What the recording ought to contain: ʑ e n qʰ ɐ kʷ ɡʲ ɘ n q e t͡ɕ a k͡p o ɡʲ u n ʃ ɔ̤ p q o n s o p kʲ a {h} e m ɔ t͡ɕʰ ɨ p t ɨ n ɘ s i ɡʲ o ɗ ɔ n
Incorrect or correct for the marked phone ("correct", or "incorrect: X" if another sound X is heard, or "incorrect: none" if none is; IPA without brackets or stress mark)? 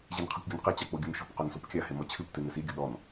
correct